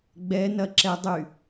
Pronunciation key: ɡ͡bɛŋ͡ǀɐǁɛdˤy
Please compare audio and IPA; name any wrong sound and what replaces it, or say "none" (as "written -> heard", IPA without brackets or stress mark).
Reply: ŋ͡ǀ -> n